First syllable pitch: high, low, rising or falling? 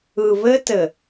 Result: low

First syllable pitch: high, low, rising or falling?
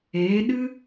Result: rising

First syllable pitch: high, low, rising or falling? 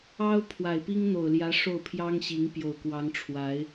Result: high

